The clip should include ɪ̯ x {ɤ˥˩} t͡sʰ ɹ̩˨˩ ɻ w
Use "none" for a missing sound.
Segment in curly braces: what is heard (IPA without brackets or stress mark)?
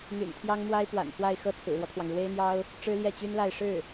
ɤ˥˩